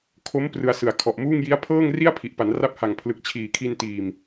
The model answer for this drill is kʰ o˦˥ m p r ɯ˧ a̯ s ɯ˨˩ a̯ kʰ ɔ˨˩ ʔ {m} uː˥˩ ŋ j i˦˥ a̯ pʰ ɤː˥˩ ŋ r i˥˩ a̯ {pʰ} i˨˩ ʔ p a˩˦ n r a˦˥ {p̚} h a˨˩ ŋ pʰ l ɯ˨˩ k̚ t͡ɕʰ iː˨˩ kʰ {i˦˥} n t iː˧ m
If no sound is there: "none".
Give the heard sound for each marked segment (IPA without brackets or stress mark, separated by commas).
m, pʰ, p̚, i˧